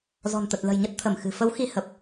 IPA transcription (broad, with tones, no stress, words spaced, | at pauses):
zɔ̤˨˩nt̪ə˨˩t̚lə̤˨˩jɲə˦˥t̚ t̪ʰə˧˩mxɨ̤˨˩ fə˨˦wxi˨˦hə˨˩p̚